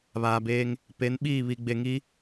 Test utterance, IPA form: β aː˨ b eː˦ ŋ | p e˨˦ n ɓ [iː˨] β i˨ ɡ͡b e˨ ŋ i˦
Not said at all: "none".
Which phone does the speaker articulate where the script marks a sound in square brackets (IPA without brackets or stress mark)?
iː˦˨